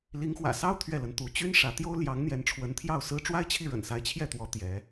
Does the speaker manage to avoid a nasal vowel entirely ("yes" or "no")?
yes